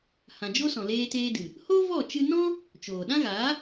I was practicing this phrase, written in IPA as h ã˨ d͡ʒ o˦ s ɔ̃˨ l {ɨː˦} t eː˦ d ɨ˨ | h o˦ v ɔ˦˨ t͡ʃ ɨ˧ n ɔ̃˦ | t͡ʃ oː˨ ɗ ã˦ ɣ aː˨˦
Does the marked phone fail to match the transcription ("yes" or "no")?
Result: yes